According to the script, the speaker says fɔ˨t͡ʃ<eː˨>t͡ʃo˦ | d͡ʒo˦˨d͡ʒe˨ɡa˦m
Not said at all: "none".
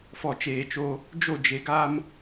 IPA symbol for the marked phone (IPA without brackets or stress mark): eː˨